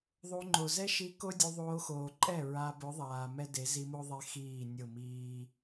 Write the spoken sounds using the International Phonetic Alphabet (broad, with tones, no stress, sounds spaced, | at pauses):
ðˤ o˧ ŋ͡ǃ o˨ z ɛ˧ ʃ i˨˦ k o˧ dʲ u˧ ðˤ oː˧ x oː˨ ǃʼ ɛ˦˨ ɹ a˧ b ʊ˨˦ ðˤ aː˨ m ɛ˦ d e˨˦ z i˧ m o˦ ðˤ e˧ x iː˦˨ nʲ ʊ˦˨ m iː˦